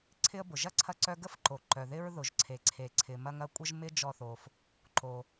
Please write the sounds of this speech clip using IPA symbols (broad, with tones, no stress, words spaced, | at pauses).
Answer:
ǀʰɪ˥ə̯bʊ˩ ʒɐ˥ǀʰɐ˧ǀœ˧ ɡə˥fǃo˩ ǃœ˩ðɪ˥ɹ ðʊ˩ʒǀʰe˩ǀʰe˩ǀʰɪ˩ mɐ˧ŋ ɐ˧kʷʼə˧ʒmɪ˧ d͡ʒɔ˧θo˩f | ǃo˩